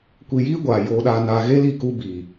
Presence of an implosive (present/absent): present